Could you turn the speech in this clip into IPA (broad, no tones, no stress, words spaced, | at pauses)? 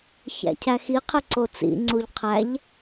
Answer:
çæ̰cʰæxiqʰe ǀot͡sḭŋ͡ǀuʎ qʰæʎ